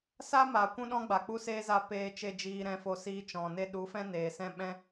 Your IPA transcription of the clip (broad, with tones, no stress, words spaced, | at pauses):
sa˦ma˨ kʷũ˦ɗɔ̃˦ ɡ͡ba˨k͡pu˦seː˦za˧ peː˧t͡ʃe˧ d͡ʒiː˧ɾɛ̃˧fo˧ siː˧t͡ʃɔ̃˨ne˦ ɗu˨˦fɛ̃˦neː˨ sɛ̃˦ɓɛ̃˦